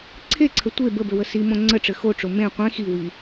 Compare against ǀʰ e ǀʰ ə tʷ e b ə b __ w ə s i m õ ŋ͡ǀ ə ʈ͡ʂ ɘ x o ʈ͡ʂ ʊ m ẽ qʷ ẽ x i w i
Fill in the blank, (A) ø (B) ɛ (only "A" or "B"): A